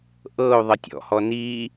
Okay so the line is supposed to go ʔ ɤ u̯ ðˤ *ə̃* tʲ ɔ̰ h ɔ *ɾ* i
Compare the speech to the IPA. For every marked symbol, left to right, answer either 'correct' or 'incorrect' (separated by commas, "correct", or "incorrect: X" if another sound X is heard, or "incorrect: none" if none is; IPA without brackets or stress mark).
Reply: incorrect: ə, incorrect: n